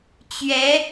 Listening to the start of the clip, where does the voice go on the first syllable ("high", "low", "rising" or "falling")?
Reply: rising